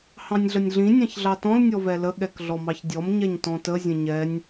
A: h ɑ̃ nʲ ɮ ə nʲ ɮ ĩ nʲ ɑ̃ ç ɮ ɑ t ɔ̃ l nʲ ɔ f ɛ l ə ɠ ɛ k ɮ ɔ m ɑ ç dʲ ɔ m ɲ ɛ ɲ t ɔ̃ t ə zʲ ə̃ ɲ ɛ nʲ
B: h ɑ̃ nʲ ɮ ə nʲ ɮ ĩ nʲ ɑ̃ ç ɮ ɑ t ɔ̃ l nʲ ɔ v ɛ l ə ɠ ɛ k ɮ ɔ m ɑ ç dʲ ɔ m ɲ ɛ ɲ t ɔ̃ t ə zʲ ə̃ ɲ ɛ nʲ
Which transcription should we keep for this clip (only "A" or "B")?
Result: B